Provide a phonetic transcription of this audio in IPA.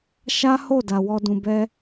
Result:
ʃ a˦ h o˦˨ d a˨ w ɔ˧ d ũ˨ b ɛ˧

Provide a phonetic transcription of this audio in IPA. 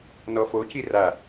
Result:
n ɔ f o c i r a

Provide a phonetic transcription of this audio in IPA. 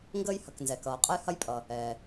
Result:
ŋ ɡ əː˦ j h ɐ˩ k n z ɛ˩ k ʌː˩ qʼ ə˦ j h ɐ˦ j pʼ ʌ˩ | ɛː˩

